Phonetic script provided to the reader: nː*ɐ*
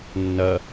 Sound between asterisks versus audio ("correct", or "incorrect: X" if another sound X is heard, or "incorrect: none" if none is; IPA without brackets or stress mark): correct